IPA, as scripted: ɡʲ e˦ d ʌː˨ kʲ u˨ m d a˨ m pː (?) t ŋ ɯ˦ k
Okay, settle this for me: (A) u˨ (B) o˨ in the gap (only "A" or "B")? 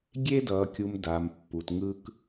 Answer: A